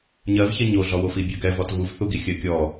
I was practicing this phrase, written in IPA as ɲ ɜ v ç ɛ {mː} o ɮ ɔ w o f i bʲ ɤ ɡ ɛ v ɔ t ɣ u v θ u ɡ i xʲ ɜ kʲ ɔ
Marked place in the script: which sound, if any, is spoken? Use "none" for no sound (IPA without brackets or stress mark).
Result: ɲ